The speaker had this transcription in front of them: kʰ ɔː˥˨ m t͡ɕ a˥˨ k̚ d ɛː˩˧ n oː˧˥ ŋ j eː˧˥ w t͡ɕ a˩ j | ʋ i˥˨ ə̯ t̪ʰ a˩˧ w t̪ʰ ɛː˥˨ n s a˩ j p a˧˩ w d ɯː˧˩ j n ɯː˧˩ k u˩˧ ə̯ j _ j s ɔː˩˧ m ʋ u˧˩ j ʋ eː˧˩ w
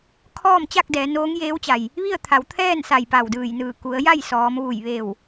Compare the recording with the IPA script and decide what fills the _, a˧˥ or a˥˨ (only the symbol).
a˥˨